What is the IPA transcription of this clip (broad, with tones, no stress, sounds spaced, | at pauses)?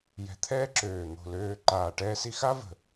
j ɛ̤˧ t̪ʰ ɛː˥ ǁ øː˧˩ n̪ o̤˧˩ l øː˧ ǃ aː˧˩ ʈ ɛː˥ s i˥ x a˥ v ə̤˧˩